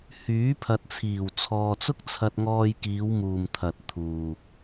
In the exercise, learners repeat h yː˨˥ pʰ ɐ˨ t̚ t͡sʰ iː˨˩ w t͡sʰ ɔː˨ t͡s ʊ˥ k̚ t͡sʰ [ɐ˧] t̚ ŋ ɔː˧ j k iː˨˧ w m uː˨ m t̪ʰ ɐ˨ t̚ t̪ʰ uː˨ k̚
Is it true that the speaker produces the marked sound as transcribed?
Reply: yes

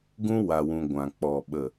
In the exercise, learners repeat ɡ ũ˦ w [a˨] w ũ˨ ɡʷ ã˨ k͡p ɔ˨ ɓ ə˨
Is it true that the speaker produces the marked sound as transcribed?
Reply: yes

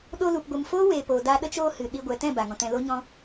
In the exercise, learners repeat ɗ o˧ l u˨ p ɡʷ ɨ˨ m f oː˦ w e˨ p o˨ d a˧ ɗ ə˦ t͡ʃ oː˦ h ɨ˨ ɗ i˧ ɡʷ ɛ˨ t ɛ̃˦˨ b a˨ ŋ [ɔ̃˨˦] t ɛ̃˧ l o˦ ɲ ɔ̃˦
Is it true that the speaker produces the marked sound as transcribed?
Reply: no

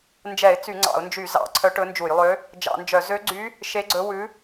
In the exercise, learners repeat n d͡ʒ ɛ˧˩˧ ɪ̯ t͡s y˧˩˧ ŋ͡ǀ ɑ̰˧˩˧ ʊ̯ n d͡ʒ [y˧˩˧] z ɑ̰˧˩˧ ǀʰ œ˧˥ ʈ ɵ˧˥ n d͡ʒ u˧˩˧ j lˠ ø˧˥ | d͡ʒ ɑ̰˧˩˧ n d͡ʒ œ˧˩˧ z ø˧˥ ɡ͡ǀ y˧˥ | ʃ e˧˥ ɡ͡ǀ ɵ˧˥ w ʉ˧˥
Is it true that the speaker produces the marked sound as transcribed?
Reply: yes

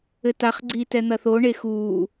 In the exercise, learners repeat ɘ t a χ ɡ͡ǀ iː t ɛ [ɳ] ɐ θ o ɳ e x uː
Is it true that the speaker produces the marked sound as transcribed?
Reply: no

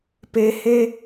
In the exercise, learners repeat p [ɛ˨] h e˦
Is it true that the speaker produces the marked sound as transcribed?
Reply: no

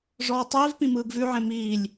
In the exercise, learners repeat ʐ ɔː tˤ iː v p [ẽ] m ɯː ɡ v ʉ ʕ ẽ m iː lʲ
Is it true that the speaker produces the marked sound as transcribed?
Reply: no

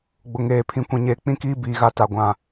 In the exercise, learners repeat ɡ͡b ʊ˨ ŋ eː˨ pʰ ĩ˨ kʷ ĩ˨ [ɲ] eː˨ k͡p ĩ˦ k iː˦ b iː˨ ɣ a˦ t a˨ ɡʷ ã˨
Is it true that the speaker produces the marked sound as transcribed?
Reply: yes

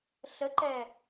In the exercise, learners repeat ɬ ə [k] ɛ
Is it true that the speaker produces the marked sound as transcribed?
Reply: no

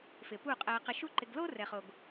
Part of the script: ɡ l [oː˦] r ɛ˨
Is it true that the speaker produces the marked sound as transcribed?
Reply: yes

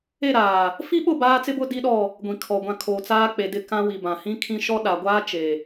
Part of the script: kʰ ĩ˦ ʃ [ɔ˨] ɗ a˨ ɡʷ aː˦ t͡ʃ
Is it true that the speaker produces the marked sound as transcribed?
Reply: no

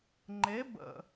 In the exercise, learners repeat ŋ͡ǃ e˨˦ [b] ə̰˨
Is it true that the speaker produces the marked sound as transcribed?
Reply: yes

